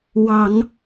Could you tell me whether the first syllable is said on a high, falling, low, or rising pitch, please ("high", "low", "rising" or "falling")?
low